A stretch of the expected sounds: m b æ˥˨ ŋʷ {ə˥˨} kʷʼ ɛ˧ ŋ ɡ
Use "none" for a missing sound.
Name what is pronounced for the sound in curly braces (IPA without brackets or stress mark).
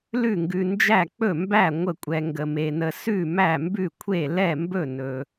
ə˥˨